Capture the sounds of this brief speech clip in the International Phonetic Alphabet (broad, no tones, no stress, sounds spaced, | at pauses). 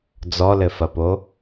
d͡z ɔ l ɘ f ɐ p o